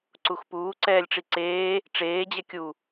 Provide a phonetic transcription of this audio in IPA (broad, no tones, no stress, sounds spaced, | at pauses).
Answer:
ǀ u x p uː ǀ ɛː lʲ ʈ͡ʂ i ǀ eː | ʈ͡ʂ eː d͡ʑ ɛ kʲ u